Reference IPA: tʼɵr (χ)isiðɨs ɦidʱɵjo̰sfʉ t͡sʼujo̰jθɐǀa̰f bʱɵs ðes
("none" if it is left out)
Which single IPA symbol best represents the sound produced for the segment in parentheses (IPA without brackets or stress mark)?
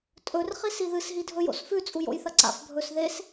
χ